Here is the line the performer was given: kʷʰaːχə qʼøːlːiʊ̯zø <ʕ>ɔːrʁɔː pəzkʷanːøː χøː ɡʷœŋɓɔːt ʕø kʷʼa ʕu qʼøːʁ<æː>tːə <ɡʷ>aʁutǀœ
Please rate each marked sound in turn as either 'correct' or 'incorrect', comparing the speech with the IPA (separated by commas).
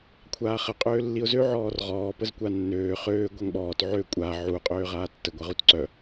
correct, incorrect, correct